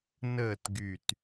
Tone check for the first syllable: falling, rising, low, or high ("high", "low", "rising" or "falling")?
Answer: falling